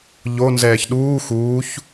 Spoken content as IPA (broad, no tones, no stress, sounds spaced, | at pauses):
ʎ o n z ɛː ç ɗ uː x uː ç